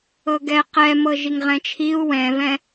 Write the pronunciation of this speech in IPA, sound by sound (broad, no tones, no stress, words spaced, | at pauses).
ɤɡɛ qɛmɤ ʒiŋʁɛ̃t͡ʃʰiu̯ wɛ̃vɛ̃